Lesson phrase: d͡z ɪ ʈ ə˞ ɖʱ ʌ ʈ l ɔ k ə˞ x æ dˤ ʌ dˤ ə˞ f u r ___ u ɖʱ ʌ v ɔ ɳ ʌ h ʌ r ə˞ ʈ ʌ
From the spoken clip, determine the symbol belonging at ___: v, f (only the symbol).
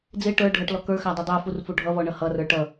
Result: f